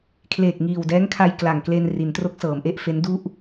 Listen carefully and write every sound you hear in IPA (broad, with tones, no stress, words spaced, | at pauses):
kʰleː˨˩k̚ŋiː˨˩wdɛː˦˥ŋkʰa˧j kla˨˩ŋkle˧n ri˩˦ntro˦˥k̚sɤː˩˦mʔe˦˥ʔ fe˦˥ndu˥˩ʔ